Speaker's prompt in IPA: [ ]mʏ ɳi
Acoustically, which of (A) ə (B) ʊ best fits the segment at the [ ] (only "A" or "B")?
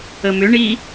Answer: A